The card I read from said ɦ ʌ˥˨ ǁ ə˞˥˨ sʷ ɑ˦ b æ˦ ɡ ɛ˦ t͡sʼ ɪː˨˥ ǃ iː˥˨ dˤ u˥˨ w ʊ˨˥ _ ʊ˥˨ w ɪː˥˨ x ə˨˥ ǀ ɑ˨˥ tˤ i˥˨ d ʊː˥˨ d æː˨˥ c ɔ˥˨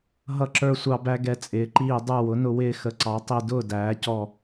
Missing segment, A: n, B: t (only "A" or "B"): A